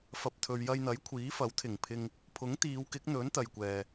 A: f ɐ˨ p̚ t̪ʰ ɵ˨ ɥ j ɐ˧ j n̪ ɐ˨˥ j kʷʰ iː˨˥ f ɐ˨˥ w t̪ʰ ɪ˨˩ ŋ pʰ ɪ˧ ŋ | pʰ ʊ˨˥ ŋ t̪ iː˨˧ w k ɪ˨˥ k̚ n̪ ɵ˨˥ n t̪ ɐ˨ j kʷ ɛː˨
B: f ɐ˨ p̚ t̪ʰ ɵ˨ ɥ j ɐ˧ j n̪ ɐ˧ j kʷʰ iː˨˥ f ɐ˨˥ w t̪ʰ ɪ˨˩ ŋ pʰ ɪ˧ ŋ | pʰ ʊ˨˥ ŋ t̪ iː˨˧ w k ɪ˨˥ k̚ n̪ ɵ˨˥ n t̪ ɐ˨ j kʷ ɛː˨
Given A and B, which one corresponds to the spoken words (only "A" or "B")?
A